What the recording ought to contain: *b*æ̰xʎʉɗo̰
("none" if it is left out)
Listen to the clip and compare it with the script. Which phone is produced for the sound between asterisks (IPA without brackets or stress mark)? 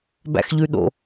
b